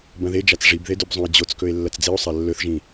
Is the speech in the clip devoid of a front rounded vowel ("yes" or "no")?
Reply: yes